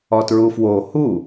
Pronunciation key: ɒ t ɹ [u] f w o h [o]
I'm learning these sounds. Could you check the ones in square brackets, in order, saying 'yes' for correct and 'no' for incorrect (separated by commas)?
yes, no